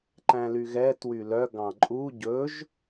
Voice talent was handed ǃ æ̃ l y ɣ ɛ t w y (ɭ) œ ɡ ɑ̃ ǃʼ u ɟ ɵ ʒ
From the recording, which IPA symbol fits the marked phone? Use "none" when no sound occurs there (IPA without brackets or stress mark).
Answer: l